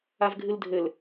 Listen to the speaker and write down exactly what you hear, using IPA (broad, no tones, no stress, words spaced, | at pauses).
avɡʱɨldʱɘl